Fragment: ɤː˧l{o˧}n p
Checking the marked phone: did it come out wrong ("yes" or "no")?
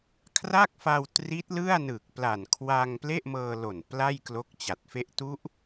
yes